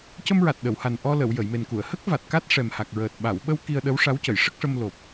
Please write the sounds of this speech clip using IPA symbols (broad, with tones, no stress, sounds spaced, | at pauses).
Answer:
c ə˧ m ɹ a˨˩ t̚ ɗ ə˨˩˨ w h a˨˩ n ʔ ɔ˧ l ə˨˩˨ w j ə˨˩˨ j m e˨˩ n k u˨˩˨ ə̯ h ə˦˥ k̚ v a˨˩ t̚ k a˦˥ t̚ ʂ ɛ˨˩ m h a˨˩ k̚ ɹ əː˨˩ t̚ ɓ a˨˩˨ w ɓ ə˧ w k i˧ ə̯ ɗ ə˧˥ w ʂ a˧˥ w c ə˨˩˨ j ʂ ə˦˥ k̚ ʂ ə˧ m l o˨˩ p̚